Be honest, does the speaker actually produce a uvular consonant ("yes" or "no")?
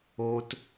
no